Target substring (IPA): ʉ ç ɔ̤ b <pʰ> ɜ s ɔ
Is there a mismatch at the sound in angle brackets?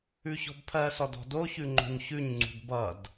no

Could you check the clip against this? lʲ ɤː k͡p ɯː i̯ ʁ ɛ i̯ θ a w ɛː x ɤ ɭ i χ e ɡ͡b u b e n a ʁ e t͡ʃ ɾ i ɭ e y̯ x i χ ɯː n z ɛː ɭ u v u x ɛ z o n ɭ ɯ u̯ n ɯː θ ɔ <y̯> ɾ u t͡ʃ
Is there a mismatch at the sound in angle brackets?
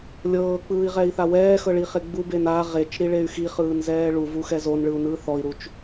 yes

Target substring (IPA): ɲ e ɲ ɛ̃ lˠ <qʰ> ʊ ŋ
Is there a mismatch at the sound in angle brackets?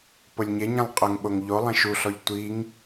yes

